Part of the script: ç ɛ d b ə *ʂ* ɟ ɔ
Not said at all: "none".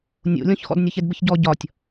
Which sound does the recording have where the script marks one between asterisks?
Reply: ç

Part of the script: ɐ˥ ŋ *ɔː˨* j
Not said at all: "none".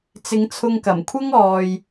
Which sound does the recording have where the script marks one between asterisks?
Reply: ɔː˨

